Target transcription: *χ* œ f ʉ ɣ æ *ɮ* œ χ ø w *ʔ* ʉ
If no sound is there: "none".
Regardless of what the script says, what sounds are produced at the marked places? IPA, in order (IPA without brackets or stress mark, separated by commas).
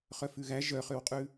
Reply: χ, ʒ, qʼ